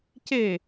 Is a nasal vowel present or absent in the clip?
absent